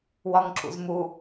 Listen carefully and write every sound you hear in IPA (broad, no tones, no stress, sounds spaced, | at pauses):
w ɒ ŋ ǁ ṵ z m u